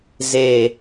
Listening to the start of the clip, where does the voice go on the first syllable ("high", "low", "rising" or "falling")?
low